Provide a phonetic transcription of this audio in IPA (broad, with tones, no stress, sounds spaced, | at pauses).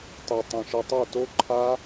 tˤ e˨ tˤ ĩ˨ ʃ ɘ˧ tˤ o˦˨ t o˦ ǃʰ a˦